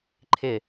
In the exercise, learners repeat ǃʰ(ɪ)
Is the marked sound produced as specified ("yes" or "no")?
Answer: yes